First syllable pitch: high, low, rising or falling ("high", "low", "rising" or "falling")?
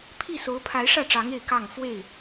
falling